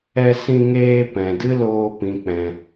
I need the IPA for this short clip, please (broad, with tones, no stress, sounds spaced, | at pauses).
ɛ˧ s ĩ˧ ŋ eː˧ p ɛ̃˨ d ɨ˦ l oː˧ p ĩ˨ k͡p ɛ̃˨